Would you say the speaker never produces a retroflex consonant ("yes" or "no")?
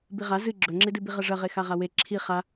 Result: no